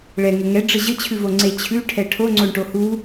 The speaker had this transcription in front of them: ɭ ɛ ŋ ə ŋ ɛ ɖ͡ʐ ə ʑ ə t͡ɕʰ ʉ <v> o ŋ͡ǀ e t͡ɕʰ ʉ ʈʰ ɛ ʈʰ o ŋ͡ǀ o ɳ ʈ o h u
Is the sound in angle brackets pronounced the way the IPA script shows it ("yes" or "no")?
yes